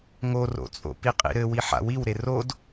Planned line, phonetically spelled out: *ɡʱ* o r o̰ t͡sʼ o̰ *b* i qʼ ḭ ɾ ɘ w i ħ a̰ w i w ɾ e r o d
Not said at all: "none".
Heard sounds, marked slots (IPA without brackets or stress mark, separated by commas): ŋ, p